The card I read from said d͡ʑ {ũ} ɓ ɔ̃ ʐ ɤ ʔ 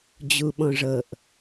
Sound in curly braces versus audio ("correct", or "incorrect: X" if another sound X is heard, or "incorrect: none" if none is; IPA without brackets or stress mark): incorrect: u